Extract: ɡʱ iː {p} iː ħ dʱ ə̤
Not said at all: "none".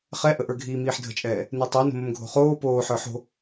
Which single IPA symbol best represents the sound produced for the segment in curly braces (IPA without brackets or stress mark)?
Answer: m